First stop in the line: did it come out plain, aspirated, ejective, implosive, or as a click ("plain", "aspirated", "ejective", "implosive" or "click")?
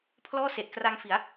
aspirated